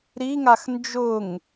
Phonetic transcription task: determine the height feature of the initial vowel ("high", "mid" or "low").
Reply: high